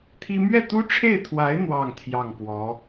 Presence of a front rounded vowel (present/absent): absent